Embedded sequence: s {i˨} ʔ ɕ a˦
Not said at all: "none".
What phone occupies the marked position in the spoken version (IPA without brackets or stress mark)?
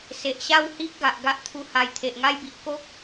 e˨